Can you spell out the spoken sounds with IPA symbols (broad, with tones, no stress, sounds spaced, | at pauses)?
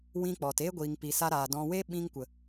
w ĩ˧ k͡p ɔ˨ t eː˦ ɡʷ iː˨ ŋ p i˨ s a˧ ɾ aː˨ d ɔ̃˨ w e˧ ɓ ĩ˧ ŋ kʷ ə˨